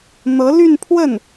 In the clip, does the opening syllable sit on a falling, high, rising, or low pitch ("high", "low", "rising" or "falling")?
rising